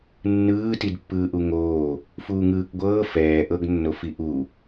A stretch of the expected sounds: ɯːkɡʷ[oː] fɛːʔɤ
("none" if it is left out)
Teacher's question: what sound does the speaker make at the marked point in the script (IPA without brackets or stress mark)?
ɤː